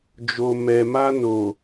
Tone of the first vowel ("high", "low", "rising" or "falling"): low